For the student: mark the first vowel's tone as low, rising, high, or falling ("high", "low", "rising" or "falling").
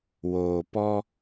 low